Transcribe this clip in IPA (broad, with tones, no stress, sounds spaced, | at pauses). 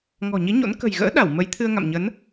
ŋ ɔ̤˨˩ ɲ i˨˦ ɲ o̰˧˥ n k ə̤˨˩ j ɣ ə̰ː˧˥ ɗ a˧˩ w m ə˨˦ j t̪ʰ ɨ˧ ə̯ ŋ a̰˧˨ m ɲ ə˨˦ n